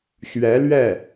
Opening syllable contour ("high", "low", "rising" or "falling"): rising